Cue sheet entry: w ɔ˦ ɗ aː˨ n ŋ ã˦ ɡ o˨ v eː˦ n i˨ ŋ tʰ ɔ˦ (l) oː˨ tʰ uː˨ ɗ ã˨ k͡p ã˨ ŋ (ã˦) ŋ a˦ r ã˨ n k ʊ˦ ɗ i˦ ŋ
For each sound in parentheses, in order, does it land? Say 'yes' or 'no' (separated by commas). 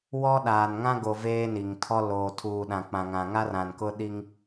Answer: yes, no